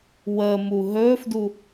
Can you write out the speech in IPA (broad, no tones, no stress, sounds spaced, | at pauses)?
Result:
w əː m u ɦ ɵː f d u